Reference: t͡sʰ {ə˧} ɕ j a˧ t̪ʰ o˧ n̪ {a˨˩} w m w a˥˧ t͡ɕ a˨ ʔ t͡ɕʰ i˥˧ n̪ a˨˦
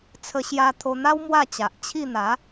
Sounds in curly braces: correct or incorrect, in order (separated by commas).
correct, incorrect